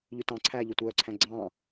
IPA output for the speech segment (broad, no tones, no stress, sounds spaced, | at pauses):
ʎ ʉ t ɑ̃ ǀʰ æː ʎ ɵ tʷ œː ǀʰ æ̃ ɡ͡ǀ ɑ̃ː